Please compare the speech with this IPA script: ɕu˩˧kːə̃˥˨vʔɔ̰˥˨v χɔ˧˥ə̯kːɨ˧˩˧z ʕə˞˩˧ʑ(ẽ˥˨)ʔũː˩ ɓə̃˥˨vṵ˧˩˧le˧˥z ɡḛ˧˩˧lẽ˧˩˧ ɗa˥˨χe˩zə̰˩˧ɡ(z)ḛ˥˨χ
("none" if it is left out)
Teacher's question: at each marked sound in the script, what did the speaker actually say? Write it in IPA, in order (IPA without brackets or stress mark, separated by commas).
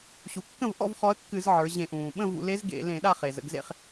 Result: ẽ˧˩˧, z